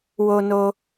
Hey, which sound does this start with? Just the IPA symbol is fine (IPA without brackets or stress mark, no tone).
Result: w